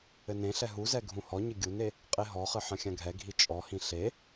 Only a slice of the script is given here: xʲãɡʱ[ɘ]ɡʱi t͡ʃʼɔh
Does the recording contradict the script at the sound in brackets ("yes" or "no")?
yes